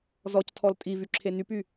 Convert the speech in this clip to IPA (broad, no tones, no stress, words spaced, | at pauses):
zɔctʰɔl tʼivyǁʰe nypy